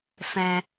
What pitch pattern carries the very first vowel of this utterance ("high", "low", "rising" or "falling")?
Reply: low